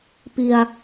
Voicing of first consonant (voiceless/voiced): voiceless